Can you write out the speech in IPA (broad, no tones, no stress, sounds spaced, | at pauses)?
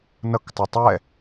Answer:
n ʌ k tˤ u tˤ ɛ